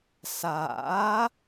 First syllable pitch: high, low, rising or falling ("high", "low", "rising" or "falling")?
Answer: rising